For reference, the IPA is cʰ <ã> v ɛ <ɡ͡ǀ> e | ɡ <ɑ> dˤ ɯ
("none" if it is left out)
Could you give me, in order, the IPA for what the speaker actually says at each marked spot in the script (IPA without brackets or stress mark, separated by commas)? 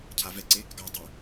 a, ǀ, ɑ